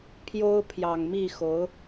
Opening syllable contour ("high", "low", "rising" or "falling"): high